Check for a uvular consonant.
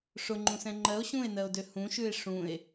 absent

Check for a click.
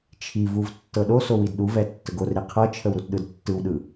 absent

